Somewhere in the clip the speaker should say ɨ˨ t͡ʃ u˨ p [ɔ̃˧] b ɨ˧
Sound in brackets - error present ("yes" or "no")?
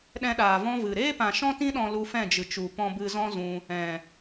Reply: no